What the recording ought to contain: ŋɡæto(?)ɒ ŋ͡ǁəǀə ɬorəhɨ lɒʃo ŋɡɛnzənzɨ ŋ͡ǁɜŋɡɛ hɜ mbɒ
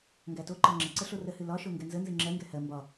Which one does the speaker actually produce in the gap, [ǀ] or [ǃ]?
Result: ǃ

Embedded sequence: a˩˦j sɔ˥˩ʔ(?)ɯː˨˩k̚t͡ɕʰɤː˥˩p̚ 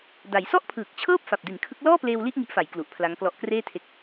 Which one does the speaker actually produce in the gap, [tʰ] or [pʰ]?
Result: pʰ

